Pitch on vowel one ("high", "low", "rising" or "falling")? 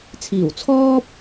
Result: low